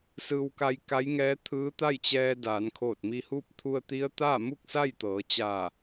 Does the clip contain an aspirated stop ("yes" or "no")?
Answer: yes